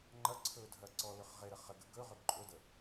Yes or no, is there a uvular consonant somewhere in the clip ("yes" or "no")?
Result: yes